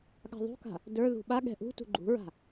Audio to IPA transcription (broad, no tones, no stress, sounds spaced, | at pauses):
ɠ a̤ ðˤ ṳ k a̤ | d ə˞ ð ṳ ɓ a ɠ ɛ̤ ʔ ṳ t ṳ ɡ͡ǃ ṳ ɹ a̤